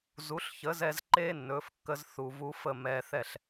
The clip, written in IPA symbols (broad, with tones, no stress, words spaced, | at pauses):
zu˩˥ɬçə˩˥zɛ˧z ǃeː˥nːɵː˩˥fkːə˧z θu˩vu˧fə˥˩ mɛː˧θɛ˥˩ɬ